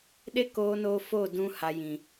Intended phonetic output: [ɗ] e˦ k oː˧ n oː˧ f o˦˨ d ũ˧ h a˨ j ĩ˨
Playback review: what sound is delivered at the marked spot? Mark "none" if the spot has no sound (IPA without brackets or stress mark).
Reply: ɗ